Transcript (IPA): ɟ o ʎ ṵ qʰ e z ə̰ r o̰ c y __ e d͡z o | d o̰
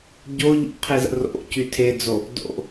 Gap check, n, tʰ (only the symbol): tʰ